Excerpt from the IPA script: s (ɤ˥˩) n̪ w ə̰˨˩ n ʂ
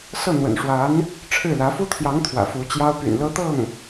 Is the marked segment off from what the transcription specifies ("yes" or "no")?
no